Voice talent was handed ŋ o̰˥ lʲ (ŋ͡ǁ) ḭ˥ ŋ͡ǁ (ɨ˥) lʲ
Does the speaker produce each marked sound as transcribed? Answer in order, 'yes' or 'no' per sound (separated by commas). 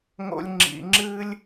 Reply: yes, yes